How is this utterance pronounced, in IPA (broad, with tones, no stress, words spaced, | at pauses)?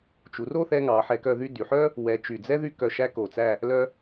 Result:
t͡ʃu˩˧ro˥˧θɛ˧ŋɑ˩˧ ħɛ˧kœ˥˧ðy˥ dy˩˧ħœ˥ | wɛ˧t͡ʃy˧˩ d͡zɛ˥ðy˥˧kœ˧ ʃæ˥ko˧˩t͡sæ˥˧ | lœ˥